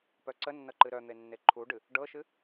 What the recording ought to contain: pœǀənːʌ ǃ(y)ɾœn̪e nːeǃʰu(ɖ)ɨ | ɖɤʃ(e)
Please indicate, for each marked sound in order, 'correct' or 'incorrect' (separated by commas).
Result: incorrect, correct, incorrect